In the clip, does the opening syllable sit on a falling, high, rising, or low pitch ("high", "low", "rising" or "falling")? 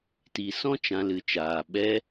low